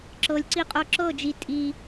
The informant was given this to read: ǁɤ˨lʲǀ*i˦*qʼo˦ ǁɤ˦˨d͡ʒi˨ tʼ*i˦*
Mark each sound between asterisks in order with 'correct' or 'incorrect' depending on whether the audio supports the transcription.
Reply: correct, correct

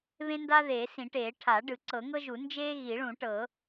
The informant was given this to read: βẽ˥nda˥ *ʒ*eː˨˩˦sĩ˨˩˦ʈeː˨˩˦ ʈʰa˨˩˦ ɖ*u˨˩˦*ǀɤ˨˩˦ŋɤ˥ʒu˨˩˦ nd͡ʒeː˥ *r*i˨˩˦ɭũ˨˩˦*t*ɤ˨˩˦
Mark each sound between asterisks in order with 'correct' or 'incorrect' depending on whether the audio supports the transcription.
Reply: incorrect: ð, incorrect: ɯ˨˩˦, incorrect: ɣ, incorrect: ʈ

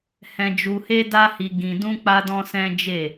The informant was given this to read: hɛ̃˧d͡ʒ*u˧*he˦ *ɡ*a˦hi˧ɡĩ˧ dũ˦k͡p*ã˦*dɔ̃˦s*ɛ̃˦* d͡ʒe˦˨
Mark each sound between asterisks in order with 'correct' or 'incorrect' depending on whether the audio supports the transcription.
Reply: correct, incorrect: d, incorrect: a˦, correct

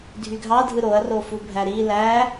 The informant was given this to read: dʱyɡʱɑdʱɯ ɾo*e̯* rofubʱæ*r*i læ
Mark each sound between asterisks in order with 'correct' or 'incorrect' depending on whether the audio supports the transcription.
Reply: incorrect: ɐ̯, incorrect: ɾ

